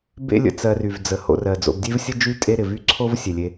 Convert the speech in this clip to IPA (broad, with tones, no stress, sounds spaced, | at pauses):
b ḛ˥ lʲ ə̰˨ t͡s ɜ˨ r y˩ v d͡z ə˩ h o̰˨ r ɜ˩ d͡z o̰˨ b dʲ e˥ v sʲ ə˥ d͡ʒ y˥ tʼ e˦ ɾ ɪ˩ v y˥ ǀʰ o˦ v sʲ e˩ lʲ e˦